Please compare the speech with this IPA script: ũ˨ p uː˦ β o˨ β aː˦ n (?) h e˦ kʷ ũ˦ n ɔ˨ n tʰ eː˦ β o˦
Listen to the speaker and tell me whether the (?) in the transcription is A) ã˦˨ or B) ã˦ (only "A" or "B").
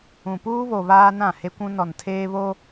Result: A